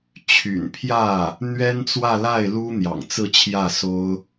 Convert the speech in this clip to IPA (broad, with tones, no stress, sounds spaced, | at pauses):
t͡ɕʰ y̰˨˩ n pʰ j ä˥˩ | n̪ ɥ ɛ˥ n t͡s w ä˥˧ l a˥˩ ɪ̯ l u˥ n̪ j ɑ̰˨˩ ŋ t͡s ɹ̩˥˧ t͡ɕʰ j ä˥˩ s o˥ ʊ̯